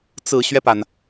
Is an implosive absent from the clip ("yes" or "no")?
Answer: yes